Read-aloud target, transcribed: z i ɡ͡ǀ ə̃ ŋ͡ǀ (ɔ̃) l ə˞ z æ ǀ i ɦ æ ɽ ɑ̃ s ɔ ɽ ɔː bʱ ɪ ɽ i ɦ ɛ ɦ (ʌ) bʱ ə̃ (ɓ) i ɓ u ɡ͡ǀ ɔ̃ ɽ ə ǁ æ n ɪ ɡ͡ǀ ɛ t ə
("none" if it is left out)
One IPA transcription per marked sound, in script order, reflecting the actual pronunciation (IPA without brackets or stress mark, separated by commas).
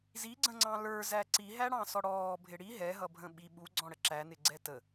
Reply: ɑ̃, ʌ, ɓ